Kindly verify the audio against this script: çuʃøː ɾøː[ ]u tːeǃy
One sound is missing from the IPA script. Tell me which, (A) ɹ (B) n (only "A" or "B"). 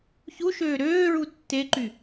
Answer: A